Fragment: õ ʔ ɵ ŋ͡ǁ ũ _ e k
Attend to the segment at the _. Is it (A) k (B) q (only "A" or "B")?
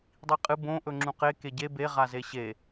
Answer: B